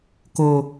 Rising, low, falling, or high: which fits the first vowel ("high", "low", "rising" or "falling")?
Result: high